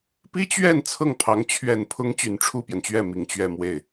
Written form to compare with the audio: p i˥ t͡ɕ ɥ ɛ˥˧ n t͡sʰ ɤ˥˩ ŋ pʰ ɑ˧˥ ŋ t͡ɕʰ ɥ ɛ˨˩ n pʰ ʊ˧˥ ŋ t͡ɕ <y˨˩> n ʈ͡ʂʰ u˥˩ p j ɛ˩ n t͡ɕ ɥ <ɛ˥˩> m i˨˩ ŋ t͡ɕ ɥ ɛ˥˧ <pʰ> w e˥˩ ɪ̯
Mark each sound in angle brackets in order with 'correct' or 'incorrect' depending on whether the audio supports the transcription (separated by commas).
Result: correct, correct, incorrect